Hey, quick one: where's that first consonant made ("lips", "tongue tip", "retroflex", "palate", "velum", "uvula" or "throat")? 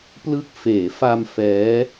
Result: lips